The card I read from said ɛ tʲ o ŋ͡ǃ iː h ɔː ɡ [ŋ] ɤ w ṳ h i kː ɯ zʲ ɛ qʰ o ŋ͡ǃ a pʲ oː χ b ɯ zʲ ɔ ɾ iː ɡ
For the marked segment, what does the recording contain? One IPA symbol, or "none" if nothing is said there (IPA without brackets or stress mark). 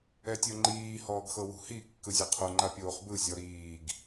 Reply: x